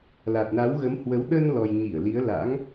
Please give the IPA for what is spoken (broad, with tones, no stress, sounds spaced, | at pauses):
l a˨˩ t̚ n a˨˦ w ɣ ə˨˦ m h w ə˨˦ w ɗ ə˧ n l ɔ˨˩ j ɲ i˧˩ ə̯ l i˨˦ ə̯ l a̰˧˥ ŋ